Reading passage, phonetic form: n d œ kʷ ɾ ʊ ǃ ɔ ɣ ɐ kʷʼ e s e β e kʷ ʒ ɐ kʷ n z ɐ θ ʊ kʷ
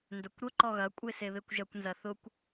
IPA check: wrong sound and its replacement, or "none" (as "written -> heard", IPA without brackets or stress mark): none